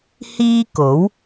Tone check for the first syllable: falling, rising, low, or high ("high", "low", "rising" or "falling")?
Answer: high